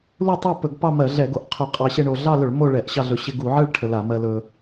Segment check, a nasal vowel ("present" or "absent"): absent